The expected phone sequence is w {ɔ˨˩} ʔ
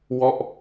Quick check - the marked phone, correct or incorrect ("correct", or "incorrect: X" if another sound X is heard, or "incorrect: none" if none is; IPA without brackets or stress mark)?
incorrect: ɔ˥˩